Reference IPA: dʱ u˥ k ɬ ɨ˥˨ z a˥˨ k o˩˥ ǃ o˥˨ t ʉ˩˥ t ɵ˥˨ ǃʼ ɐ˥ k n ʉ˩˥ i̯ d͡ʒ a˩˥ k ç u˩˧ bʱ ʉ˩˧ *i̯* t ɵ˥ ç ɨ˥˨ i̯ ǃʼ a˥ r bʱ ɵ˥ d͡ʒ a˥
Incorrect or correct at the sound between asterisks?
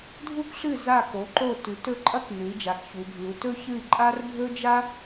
incorrect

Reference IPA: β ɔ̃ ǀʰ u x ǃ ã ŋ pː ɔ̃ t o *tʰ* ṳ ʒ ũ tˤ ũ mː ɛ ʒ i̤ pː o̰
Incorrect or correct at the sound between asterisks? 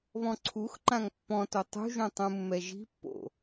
incorrect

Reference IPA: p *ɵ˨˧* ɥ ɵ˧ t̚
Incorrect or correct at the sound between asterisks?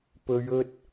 correct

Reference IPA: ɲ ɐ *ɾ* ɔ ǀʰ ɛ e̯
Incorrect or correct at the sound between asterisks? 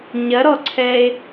correct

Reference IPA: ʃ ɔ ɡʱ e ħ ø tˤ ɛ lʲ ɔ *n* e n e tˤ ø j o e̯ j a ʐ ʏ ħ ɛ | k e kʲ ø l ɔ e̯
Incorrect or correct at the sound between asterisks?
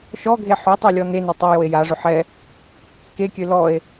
correct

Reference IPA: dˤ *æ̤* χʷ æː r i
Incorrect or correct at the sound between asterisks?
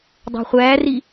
correct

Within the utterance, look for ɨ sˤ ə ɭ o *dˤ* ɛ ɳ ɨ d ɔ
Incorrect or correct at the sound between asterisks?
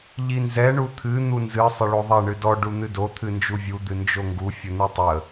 incorrect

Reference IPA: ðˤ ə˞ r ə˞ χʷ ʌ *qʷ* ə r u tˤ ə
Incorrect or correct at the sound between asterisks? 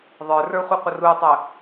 correct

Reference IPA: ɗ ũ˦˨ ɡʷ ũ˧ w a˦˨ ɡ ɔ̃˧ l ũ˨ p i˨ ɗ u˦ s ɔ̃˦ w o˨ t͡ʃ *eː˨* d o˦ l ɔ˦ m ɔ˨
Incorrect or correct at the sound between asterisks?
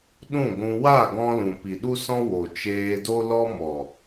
incorrect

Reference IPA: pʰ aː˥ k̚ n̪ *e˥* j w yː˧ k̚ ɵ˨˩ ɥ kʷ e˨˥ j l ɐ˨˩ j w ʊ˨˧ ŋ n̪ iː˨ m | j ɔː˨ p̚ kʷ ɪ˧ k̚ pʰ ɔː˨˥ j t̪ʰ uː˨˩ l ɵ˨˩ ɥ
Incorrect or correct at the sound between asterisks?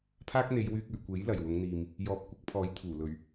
incorrect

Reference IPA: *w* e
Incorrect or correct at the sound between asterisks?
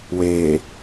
correct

